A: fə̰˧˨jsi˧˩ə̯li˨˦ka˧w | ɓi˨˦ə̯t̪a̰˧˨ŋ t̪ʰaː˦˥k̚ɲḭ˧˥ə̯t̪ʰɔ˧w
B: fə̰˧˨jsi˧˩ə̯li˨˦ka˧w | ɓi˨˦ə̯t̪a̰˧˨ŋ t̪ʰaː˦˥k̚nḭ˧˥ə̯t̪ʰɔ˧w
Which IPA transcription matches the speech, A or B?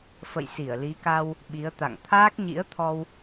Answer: A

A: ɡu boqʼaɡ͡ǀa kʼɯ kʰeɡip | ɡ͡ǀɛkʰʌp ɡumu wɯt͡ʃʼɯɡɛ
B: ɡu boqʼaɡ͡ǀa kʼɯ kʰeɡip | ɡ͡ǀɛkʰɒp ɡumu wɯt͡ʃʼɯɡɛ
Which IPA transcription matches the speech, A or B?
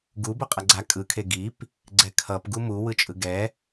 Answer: A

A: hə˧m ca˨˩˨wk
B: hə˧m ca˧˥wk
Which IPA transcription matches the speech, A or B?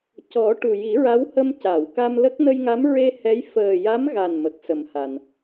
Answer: A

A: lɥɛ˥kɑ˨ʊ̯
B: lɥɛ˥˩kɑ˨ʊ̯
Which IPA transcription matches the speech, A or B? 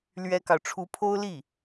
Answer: A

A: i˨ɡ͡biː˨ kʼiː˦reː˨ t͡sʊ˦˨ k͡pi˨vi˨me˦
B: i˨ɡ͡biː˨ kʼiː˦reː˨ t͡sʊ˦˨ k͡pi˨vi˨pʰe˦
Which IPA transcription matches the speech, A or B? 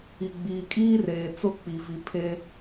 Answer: B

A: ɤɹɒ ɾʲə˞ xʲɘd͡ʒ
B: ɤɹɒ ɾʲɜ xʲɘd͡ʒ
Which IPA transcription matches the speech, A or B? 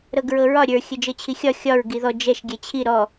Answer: A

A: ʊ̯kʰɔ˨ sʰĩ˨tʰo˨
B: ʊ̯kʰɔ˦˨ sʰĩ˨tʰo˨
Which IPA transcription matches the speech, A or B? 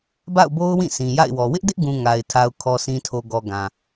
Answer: A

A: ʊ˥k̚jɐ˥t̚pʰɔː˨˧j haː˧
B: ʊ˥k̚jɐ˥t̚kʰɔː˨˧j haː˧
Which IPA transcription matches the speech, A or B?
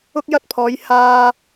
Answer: A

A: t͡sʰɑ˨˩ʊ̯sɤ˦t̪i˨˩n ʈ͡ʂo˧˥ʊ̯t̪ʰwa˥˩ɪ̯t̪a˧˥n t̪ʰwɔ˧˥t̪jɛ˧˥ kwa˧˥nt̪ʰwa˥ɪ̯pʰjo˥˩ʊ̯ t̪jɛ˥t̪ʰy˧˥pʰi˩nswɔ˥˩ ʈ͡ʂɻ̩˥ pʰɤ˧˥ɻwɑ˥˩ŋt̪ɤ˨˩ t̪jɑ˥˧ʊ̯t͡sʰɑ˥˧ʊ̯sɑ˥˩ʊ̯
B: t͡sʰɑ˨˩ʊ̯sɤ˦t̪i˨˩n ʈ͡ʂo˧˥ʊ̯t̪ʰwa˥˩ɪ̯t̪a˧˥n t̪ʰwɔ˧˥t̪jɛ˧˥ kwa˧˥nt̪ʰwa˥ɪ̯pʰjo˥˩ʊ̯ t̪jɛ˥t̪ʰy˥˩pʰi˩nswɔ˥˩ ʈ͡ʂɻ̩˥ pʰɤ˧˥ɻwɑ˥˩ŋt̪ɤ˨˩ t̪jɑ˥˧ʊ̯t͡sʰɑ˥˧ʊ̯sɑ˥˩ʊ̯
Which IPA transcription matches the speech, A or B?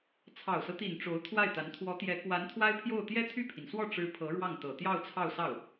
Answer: B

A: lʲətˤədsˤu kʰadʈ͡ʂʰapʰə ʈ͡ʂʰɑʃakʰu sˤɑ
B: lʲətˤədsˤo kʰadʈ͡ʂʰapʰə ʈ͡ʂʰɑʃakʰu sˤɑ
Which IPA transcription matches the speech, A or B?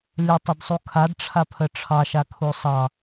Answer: A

